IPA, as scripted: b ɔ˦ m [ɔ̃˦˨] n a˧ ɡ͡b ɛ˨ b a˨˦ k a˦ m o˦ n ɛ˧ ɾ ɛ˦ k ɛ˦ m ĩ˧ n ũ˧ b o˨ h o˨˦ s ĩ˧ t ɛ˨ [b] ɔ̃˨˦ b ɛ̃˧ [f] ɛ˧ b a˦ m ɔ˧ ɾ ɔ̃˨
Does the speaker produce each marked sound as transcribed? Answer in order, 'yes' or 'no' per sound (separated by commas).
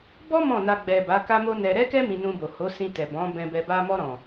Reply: yes, yes, no